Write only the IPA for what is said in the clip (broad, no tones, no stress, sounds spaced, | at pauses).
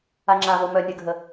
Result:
a ŋ͡ǁ a v o m œ nʲ ə ɡʱ ə